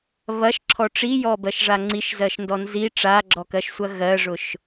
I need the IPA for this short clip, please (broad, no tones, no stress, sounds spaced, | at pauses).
β ɐ ʃ ǁʰ ɔ ʈ͡ʂ i j ɔ b ɜ ʃ ʐ a ŋ͡ǀ i ʃ z ɜ ʃ n d ɔ n z i ʈ͡ʂ a ɡ͡ǁ ɔ k ɜ ʃ sʷ ɐ ɣ ɜ ʐ ʊ ʃ